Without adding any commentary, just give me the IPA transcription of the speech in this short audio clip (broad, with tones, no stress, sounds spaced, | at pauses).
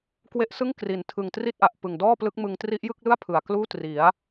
k w e˦˥ ʔ s ɯ˥˩ ŋ k r i˨˩ n tʰ ɯ˨˩ ŋ t r i˥˩ t̚ ʔ a˨˩ ʔ p ɯ˨˩ ŋ d ɔː˥˩ p l ɯ˦˥ k̚ m ɯ˧ ŋ t r i˦˥ ʔ j ɯ˥˩ k̚ l ɯ˥˩ a̯ pʰ ɯ˨˩ a̯ k l uː˥˩ t r i˩˦ a̯